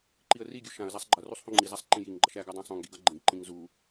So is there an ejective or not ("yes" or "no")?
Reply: no